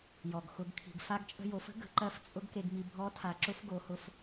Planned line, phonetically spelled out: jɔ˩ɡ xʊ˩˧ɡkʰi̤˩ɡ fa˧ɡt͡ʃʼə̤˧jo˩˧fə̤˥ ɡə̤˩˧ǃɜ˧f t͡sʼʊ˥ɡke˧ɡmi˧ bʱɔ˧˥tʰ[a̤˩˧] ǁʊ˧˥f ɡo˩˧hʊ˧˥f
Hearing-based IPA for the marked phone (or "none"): a˩˧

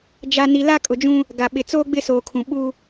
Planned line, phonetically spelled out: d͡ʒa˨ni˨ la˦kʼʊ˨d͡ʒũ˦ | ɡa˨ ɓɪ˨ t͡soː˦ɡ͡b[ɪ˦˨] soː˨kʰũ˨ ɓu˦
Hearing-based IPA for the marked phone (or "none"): ɪ˦˨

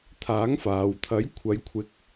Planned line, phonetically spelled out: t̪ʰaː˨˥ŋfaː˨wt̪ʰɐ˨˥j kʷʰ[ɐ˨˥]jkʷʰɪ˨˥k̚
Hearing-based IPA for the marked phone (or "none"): ɐ˨˧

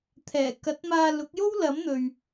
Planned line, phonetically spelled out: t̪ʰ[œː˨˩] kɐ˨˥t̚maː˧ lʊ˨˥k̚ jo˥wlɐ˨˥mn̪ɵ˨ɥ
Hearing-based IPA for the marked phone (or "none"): ɛː˨˩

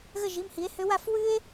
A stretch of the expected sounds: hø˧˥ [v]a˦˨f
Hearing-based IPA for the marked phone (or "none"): w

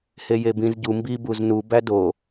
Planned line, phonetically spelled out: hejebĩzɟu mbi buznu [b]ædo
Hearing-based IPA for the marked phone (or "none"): b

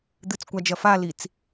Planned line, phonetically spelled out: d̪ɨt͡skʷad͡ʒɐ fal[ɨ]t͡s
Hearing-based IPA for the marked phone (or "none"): i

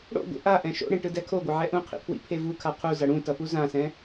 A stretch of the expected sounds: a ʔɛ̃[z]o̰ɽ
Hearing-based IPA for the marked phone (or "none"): ʃ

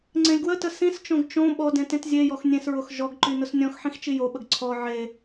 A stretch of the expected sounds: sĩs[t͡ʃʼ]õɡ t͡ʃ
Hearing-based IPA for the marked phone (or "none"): t͡ʃ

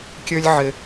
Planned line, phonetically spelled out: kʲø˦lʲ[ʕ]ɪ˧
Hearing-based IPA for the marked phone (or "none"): ʕ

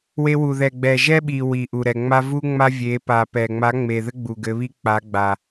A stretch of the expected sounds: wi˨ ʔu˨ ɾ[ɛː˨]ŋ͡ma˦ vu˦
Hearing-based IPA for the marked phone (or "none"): ɛ˨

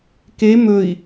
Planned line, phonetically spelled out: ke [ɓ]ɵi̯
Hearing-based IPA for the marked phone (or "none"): m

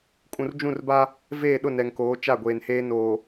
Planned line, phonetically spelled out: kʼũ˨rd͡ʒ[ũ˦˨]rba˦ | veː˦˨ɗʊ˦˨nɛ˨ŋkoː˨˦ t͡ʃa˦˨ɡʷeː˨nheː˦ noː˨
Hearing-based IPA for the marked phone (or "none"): ũ˦˨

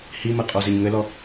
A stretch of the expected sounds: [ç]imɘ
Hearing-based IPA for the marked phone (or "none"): h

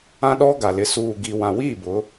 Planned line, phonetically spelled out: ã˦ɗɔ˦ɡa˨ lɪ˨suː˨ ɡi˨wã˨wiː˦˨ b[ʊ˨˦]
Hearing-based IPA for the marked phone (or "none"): ʊ˨˦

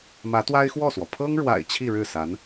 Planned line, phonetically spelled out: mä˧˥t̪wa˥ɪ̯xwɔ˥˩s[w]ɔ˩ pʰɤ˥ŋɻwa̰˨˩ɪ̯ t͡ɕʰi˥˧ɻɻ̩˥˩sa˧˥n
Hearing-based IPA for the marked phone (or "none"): w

